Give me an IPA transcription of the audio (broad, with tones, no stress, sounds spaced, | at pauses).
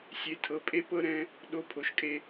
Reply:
sʲ e˨ tʰ ɤ˨ pʼ e˦ p ɤ˦ ɾ ɛ̃˦ | ɗ o˦˨ pʰ o˨ ʃ kʼ e˦